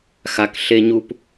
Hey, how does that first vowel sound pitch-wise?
low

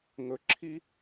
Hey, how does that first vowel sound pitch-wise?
low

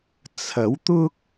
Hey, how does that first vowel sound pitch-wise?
rising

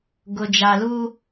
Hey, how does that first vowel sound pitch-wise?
low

